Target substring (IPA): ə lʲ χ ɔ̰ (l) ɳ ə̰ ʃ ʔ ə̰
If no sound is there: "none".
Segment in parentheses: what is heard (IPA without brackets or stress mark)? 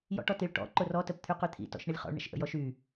ɭ